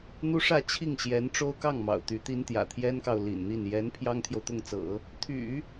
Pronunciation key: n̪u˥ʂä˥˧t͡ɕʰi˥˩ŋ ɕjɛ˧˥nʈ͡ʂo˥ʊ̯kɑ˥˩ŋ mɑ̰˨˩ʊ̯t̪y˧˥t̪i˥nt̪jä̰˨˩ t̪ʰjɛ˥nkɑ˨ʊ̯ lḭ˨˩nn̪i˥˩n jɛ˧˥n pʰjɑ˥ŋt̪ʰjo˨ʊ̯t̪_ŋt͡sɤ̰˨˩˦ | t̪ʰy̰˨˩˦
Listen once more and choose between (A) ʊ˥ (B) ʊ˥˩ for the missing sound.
B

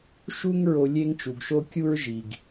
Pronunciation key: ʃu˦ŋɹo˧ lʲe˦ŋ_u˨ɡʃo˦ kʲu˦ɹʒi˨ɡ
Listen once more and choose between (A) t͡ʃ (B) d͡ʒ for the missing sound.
A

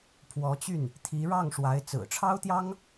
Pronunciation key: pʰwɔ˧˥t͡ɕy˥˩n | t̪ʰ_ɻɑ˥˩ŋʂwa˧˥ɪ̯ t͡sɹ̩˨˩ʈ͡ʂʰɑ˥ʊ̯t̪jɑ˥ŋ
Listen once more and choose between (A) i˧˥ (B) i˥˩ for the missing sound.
A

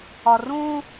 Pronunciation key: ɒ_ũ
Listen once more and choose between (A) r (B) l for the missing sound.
A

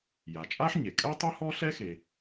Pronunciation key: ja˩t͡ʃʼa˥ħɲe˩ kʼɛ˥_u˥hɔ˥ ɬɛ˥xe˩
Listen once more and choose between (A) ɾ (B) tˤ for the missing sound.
B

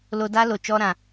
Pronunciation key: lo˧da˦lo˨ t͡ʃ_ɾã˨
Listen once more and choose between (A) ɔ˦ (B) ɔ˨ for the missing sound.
A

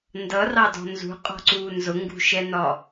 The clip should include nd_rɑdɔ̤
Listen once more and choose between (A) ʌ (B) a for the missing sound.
A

